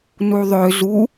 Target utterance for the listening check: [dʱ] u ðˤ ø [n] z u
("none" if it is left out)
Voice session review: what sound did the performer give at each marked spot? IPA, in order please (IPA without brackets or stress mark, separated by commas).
n, none